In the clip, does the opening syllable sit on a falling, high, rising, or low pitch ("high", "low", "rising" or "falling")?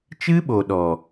high